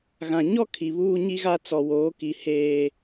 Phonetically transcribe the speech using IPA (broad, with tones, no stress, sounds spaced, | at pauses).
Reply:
ɣ ã˨ ɲ ɔ˦ kʰ i˨ β uː˦ ɲ i˦ ɣ a˦ t͡s ɔ˨ w oː˨˦ k i˨ h eː˦